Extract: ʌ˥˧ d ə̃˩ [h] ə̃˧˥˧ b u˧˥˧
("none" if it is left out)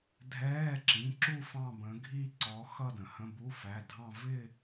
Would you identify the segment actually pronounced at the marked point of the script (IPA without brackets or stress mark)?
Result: h